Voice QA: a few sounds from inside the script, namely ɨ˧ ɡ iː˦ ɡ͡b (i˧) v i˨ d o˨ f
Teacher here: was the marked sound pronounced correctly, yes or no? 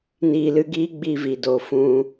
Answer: yes